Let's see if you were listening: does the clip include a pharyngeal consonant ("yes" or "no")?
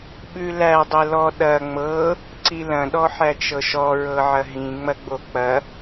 yes